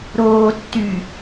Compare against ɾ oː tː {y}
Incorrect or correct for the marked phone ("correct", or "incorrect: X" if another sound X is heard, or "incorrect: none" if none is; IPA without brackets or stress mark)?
correct